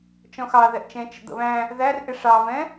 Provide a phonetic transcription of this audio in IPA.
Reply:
t͡ʃɔ̃xɑðɛʔt͡ʃɛ̃ t͡ʃə̰d̪ə̰βæ̃ | ðærʔɪ ʂɑvɛ̃

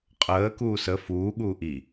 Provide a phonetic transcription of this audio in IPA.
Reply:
qʼəː kuːsə fuː ɠuːʔi

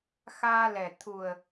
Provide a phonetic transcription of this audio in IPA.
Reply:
xaː˧lɛ˨˩ t̪ʰu˨˩ə̯

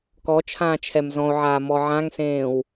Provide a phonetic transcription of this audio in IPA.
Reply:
kɔt͡ʃʰãː t͡ʃʰɛmzɔ̃o̯ʕaː mɔʕãŋsẽːw

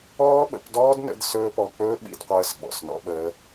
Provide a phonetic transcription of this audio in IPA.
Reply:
ɔː˦ɓə̰˧pdɔː˦dnə̰˧d sɵː˦pɔ˧ k͡pɵː˦ɓḭ˧dqʷəː˧s ɓɔ̰˨snɔ̰˧ɓəː˧

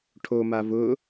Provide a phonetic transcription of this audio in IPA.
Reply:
ʈʰoma vʊ

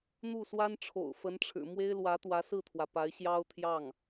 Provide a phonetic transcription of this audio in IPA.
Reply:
n̪u˥˩swa˥nʈ͡ʂʰo̰˨˩ʊ̯ fə˧˥nʈ͡ʂʰɻ̩˨˩ mwe˥ɪ̯lwä˧˥t̪wä˧˥ sɹ̩˥˩t̪ʰwä˩ pa˧˥ɪ̯ɕjɑ˥ʊ̯t̪ʰjɑ˥˩ŋ

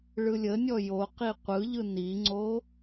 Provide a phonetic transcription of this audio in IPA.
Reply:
ɭɯlʲənʲɔ joqi qʷɯʎɯ niŋ͡ǀo

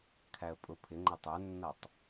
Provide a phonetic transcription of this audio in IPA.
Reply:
kʰæə̯pʼʊ pʰɪŋ͡ǃʌ tˤə˞nːʌtˤ

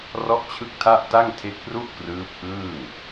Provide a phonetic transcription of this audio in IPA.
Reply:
rɔ˥˩ʔt͡ɕʰɯ˥˩k̚tʰa˥˩ʔ ta˥˩ŋtʰe˦˥k̚pru˥˩ʔ krɯː˦˥p̚ʔɯː˥˩ŋ

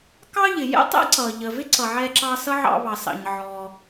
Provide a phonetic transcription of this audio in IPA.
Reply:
kɑ˥ʎɪ˩ jɛ̰˥tˤɛ̰˥ ǀʌ˩ ʎə˩vɪ˥ǀʌ˩ ʕɛ˧ǁɑ˧ sʌ˥ʕɑ̰˧ βɑ˩sɑ̰˩ɲʕɔ˩

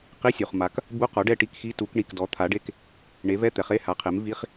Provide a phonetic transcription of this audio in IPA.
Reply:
qi˧˥˧sʲu˩χma˩˥k | bu˧˥˧qɔ˩˥ɖɛ˦˨ ʈi˦˨kxi˧˥˧tu˨˩˦kɳi˩k dɔ˩˥t̪ʰa˩˥ɖe˧˥˧k | ɳe˩˥vɛ˧˥˧t̪ɛ˩χe˧˥˧ ha˩˥qʰe˩˥mvi˧˥˧χ

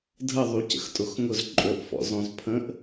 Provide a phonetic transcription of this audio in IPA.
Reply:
dʱəðˤu cə̰xtʼʊxŋʊz ǃʼɵʔ fɔ̰zɔ̃zpʰə̃ʔ

